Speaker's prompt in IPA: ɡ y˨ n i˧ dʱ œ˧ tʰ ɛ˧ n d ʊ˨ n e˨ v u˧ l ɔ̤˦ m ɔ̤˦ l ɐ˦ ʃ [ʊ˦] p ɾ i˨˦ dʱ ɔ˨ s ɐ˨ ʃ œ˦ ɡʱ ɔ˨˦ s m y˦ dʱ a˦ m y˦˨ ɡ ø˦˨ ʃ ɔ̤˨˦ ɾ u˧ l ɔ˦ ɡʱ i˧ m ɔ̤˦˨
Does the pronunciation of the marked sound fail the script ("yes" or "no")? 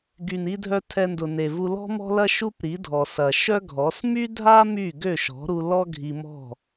yes